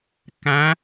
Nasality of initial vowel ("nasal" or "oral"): nasal